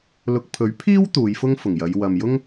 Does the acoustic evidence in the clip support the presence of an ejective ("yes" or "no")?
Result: no